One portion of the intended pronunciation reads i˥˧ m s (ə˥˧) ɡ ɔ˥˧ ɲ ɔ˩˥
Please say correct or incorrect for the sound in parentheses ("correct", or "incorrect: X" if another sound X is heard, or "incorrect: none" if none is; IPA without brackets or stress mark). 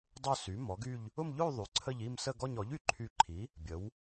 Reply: correct